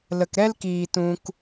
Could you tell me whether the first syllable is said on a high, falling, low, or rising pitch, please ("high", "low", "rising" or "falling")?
low